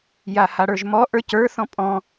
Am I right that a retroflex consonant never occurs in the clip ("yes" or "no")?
no